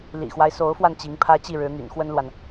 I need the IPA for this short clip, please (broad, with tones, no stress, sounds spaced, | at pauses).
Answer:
l ḭ˨˩ x w a˦ ɪ̯ s o˧˥ ʊ̯ f w a˧ n t͡ɕ i˧˥ ŋ pʰ ä˥ t͡ɕ i˥˩ ɻ ɻ̩˧˥ n̪ y̰˨˩ n x w ə˥ n l w a˨ n